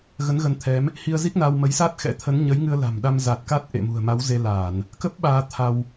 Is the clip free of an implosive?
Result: no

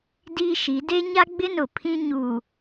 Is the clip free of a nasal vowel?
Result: no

